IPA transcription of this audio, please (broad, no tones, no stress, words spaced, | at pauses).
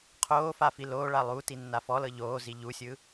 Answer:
qʰoːfa filoːɭa lˠu tinːafɔlɤ ʎoːzi ʎusʲɯ